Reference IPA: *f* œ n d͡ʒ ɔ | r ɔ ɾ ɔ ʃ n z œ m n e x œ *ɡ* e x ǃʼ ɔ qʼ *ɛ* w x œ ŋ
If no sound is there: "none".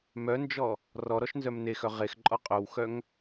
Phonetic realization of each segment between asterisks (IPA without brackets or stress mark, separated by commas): m, ʁ, œ